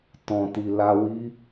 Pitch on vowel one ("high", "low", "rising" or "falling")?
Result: low